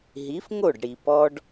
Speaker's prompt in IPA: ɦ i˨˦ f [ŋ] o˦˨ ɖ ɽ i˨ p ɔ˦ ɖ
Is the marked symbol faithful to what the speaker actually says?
yes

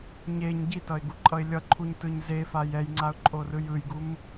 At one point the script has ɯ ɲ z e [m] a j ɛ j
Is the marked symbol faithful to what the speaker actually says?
no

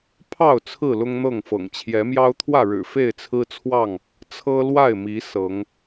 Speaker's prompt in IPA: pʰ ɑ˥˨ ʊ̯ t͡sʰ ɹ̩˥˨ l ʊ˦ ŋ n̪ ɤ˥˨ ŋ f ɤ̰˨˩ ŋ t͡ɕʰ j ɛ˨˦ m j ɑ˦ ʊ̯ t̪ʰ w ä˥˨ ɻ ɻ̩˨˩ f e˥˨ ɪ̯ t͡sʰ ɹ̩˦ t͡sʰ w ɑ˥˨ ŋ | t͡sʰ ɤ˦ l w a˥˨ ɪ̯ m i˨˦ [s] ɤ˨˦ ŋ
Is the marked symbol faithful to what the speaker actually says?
yes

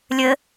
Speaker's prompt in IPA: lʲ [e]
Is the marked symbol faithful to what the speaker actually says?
no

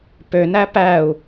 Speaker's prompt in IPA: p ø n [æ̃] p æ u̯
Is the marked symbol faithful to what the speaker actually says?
no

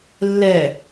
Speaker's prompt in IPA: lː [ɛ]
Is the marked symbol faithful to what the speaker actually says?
yes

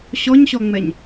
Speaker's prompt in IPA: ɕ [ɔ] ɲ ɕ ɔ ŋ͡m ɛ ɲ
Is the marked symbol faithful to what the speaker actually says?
yes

